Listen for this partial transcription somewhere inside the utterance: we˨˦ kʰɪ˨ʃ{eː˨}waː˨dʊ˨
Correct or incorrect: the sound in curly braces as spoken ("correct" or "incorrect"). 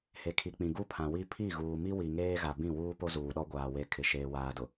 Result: correct